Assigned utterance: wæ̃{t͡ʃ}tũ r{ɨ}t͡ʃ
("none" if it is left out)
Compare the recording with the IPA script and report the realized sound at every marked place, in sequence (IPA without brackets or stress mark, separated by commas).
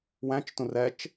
t͡ʃ, ɛ